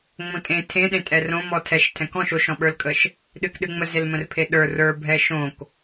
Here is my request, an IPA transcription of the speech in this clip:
ŋ͡mõtʼẽ tʰẽɗẽtʼɛ rõmɔ tʰɛʃtʰɛ̃ kɔ̃ʃ oʃɔ̃ɓə˞lkʼəʃ | ɗɨkɗɨŋ͡mə zelmə̃rpʰeɗə˞ rə˞bʱɛ ʃõk

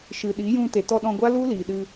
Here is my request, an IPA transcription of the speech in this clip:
ʃɨ˨ɗi˨˦ jũ˧ te˨tɔ˧ɗɔ̃˧ɡʷa˦ lu˦ liː˨ɗɨ˧

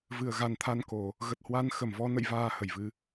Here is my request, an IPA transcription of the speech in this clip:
vɨ˧˩ə̯ɣa˨˩nt̪ʰa˧nko˧˩˨ | ɣə˨˩t̚hwa˧n xə˧˩mvɔ˧ nə̰˧˨jvaː˨˩ hə˧˩jvɨ˧

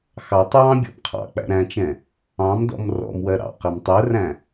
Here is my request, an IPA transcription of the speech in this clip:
xɑtˤɹɑ̃ bʲɔ̰bqʰɑ̰k͡pæ̰ ɾæ̃t͡ʃɛ̃ | ɑ̃mdɔ̰m rɔ̰mwɜ ɾɑ̰qɛm tˤɜræ̃

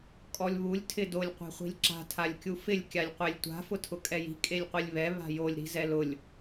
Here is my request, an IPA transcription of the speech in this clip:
kʼɔlʲβulʲ tʰɪdolʲ qʷe̤χʷi̤lʲǁa̤ tʰalʲkʲufɪlʲ kʲalʲqʷelʲtʷa̤ fʊtʰʊkʼɛji̤ kʼelʲqʷilʲβɛ βa̤jolʲ ɾi̤zɛlʊlʲ

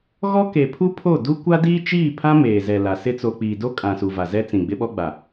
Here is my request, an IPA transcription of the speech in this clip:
ɣɔ˦ke˨pʰu˦ pʰo˦˨du˦ kʷa˦diː˦t͡ʃiː˦˨pʰã˦ meː˨zɛ˨la˨sɪ˦ t͡so˨k͡piː˨do˦ kʼã˨su˨ va˨zɛ˦t͡sĩ˨ ɡ͡bɪ˦ɓɔ˦ɡ͡ba˨

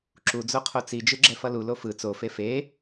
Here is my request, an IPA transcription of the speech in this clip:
ǁud͡zo qʰot͡sid͡ʒɯ ɡ͡ǁɛfʌlulo fɯ t͡sofe fe

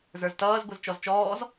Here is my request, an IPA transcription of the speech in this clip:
zə˞ztʌːz ɡʷɛzt͡ʃɔzt͡ʃɔːz

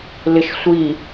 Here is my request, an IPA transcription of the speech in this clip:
lɪʃsʷi

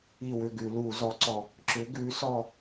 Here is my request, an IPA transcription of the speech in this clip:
i˧˩ wʏ˥˨ɡʉ˧˩˧luː˧˩˧ zɔ˨˥ǀɔ˧˩ | ǁʏ˨˥ɡʉː˨˥sɔ˥˨

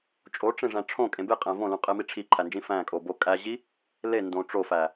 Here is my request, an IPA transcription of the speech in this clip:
t͡ʃʼoʈ͡ʂẽʐæ̃ ʈ͡ʂʰõkʼẽ beqʼæ̃ võlũqʼemi ʈ͡ʂʰiǃʰænd͡ʒĩ fæ̃kʼo bo kʼæʑi | lendõ ʈ͡ʂofæ

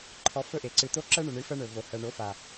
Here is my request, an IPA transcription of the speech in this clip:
ǃʰɔ˨ fɵ˦ ʔe˨ ǀɨ˨t̪o˦ ǁɜ˦ɳɵ˨ɳɨ˨˦ fɜ˦ɳɵ˨ vo˨hɜ˨ ɳo˨˦fa˨

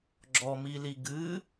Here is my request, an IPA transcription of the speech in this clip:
ɡ͡ǁɔmili ɡɨ

